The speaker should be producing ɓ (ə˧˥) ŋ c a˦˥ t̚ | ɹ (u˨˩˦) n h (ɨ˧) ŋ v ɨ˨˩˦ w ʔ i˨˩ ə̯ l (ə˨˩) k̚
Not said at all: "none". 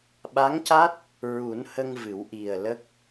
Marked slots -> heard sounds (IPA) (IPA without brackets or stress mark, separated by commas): a˧˥, u˨˩˦, ə˧, ə˦˥